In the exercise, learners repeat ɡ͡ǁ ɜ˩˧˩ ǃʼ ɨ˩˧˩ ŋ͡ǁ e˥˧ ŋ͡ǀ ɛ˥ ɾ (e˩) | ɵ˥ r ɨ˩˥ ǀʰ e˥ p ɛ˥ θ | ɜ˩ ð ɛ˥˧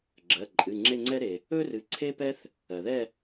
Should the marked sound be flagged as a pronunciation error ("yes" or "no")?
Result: no